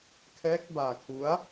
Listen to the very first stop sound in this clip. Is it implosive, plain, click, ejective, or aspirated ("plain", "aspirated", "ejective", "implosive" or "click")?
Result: aspirated